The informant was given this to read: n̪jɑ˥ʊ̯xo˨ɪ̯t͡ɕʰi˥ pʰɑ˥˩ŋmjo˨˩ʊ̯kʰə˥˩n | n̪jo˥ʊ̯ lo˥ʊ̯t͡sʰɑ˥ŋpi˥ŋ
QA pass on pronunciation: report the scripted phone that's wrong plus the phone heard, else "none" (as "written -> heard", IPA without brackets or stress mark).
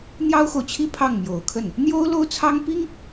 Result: ɪ̯ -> ʊ̯